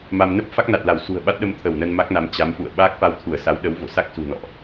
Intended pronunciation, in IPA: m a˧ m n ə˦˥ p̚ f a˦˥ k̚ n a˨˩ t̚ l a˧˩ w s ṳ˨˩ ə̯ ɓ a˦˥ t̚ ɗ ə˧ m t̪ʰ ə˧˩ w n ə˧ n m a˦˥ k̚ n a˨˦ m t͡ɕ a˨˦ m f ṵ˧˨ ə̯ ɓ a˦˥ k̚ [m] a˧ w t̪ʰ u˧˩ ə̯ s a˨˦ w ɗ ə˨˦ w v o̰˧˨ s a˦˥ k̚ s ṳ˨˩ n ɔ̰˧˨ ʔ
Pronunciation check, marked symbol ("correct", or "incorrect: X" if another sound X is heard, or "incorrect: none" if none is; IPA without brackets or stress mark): incorrect: f